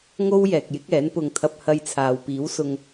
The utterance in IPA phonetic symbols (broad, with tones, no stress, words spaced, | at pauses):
ŋo˥wjɛː˨k̚jɪ˨˥k̚ ɛː˨˥npʊ˧ŋt̪ʰɐ˧p̚ hɐ˧jt͡sʰaː˨w piː˨˥wsʊ˧ŋ